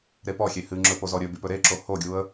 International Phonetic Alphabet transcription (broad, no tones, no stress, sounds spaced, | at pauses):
ɾ e p ɔ xʲ e h ɨ ŋ͡ǁ ɵ p o z ɔ ɾʲ ɵ b y p ɵ ɾ e ǁ o h o ɡʲ u ə̯